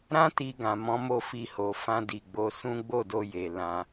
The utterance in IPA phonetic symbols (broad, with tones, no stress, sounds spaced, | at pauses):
ɾ ã˦ t i˧ ɡ ã˨ m ɔ̃˨˦ m o˦˨ f i˧ h o˨ f ã˧ d i˨ ɡ͡b o˨˦ s ũ˦ ɡ͡b o˦˨ d o˧ j e˨ l ã˧